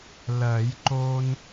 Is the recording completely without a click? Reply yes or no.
no